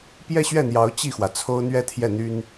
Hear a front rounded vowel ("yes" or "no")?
yes